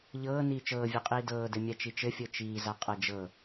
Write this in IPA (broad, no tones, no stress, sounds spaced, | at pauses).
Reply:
ʎ ɤː n iː t͡ʃ ɤː vʲ a qʼ iː d ɤː d ɘ mʲ a t͡ʃ i t͡ʃ ɘ fʲ ɤ t͡ʃ iː z a qʼ ɤ d͡ʒ ɤ